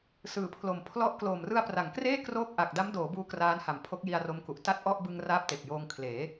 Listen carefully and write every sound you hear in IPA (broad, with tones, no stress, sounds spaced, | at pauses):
s ɯː˨˩ pʰ l o˨˩ m pʰ l ɔ˥˩ ʔ k l oː˨˩ m r ɯ˧ a̯ p r a˩˦ ŋ k r eː˥˩ k r oː˥˩ k̚ ʔ a˨˩ k̚ d a˦˥ m d oː˩˦ b uː˦˥ k r aː˦˥ n h a˨˩ m pʰ o˦˥ k̚ j i˧ a̯ r o˦˥ m k u˨˩ ʔ t a˥˩ t̚ ʔ ɔ˥˩ ʔ b ɯ˧ ŋ r aː˦˥ p̚ t e˨˩ k̚ j oː˧ ŋ kʰ l eː˩˦